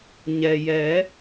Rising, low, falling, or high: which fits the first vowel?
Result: low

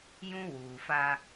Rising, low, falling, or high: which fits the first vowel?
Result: high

